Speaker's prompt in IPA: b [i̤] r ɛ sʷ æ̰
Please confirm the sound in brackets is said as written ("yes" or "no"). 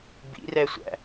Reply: no